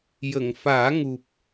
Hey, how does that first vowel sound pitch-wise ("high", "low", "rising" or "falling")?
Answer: low